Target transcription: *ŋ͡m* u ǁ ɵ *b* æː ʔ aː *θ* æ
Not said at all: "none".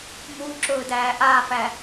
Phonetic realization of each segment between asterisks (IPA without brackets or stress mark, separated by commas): m, d, f